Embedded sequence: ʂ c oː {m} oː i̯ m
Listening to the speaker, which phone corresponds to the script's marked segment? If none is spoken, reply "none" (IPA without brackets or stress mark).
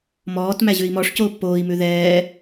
pː